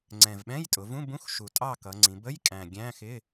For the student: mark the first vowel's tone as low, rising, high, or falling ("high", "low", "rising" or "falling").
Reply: low